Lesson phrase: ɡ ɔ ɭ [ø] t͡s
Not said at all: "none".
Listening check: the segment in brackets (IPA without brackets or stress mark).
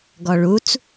u